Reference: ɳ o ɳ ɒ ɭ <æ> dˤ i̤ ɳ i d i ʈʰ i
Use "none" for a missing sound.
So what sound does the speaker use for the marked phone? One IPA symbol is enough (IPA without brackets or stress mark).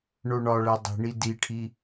æ